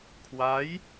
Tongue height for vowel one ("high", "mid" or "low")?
low